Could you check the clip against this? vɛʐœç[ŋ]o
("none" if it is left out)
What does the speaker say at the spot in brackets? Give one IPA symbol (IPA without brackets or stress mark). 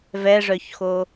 x